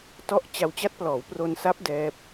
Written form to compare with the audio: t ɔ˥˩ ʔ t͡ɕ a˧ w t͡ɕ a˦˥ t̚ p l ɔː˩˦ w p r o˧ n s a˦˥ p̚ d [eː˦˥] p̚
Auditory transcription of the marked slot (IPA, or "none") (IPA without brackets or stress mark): ɛː˦˥